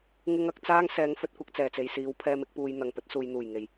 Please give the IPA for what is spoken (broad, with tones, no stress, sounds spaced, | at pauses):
ŋ ɪ˥ ŋ ɐ˨˥ k̚ t͡s aː˥ ŋ s ɛː˨˧ ŋ f ɵ˧ t̚ kʷ ɐ˧ k̚ t͡s ɛː˨˩ t͡s e˨ j s iː˨˥ w pʰ ɛː˧ m ɪ˨˥ k̚ p uː˧ j n̪ ɐ˨ ŋ p ɵ˨˥ t̚ s uː˨ j n̪ uː˨˩ j ŋ e˨˩ j